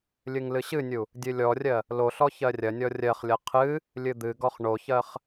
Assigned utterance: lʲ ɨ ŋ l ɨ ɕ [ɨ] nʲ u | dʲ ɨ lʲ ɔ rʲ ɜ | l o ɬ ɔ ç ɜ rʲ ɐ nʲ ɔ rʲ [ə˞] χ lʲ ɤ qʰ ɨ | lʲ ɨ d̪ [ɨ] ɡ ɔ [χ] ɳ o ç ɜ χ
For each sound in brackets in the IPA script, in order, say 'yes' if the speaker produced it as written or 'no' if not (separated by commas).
yes, no, yes, yes